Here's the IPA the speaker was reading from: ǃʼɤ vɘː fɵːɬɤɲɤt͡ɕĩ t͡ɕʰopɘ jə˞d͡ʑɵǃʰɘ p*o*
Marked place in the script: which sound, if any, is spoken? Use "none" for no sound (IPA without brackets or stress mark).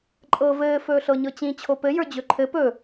ɵ